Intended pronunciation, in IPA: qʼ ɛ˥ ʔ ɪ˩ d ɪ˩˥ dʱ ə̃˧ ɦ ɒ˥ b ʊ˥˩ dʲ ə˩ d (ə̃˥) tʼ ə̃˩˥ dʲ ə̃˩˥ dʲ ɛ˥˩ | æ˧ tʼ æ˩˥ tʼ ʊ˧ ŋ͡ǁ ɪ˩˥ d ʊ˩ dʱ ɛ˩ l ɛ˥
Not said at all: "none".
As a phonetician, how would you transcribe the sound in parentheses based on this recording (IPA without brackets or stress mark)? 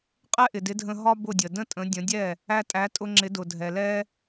ə̃˥